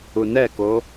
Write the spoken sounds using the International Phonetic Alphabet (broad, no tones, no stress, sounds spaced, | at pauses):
u n ɛ k o